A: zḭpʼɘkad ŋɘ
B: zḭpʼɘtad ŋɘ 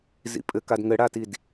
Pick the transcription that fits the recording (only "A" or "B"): A